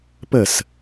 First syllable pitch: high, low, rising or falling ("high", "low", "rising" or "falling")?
falling